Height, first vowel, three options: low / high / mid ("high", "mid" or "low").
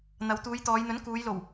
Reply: low